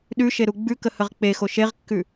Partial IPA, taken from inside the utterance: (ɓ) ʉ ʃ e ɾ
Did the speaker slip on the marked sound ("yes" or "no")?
yes